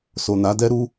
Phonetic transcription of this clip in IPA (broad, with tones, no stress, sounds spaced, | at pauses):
s o˨ n a˨˦ d ɛ˦ ɾ u˦